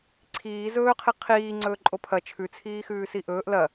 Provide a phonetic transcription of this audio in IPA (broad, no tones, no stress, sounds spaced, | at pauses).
ǀʰ iː z ɵː qʰ i qʰ iː ŋ͡ǀ ɵː ǃʼ o pʰ ɐ t͡ʃʰ ʉ t͡sʰ iː x ʉː s i ʔ ɵː ʔ l ɐ